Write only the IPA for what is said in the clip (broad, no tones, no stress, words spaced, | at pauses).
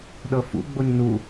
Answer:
ɗɤfṵ ɡ͡boɲnu